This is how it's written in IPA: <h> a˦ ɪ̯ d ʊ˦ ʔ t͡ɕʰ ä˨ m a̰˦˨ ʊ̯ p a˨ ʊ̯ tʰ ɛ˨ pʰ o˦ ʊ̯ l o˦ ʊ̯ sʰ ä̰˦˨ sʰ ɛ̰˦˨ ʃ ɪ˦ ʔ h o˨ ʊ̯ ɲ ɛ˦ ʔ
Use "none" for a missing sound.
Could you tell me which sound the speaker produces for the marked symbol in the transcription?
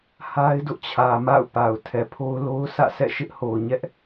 h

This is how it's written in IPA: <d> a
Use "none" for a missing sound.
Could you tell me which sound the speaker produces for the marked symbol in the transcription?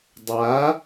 dˤ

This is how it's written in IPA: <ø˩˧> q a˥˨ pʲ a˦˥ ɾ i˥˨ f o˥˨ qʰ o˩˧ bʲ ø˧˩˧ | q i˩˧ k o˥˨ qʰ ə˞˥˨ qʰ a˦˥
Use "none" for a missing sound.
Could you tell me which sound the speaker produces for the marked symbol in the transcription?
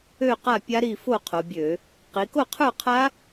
ø˥˨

